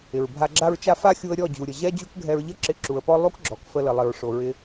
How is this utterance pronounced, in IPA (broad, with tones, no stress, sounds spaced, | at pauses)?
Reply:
ɪ˨ ɹ bʱ a˧ ɡ͡ǁ a˦ ɹ t͡ʃ a˦ f a˦ xʲ u˧ ə̯ ɾʲ ɔ˦˨ d͡ʑ u˨ ɾʲ ə˨ ʑ ɛ˦ d͡ʑ u˦ k ɡʱ ɛ˧ ɹ ʎ ə˦ ǁ ɪ˧ ǁ u˨ ə̯ p ɔ˦ lˠ u˦ k ɡ͡ǁ ɔ˨ k f ə˧ l ə˨ lˠ ɪ˨ ɹ ʂ o˨ ɹ ɪ˧